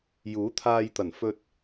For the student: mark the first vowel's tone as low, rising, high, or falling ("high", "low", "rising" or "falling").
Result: rising